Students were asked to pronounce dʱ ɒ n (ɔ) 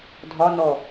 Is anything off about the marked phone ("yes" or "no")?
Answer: no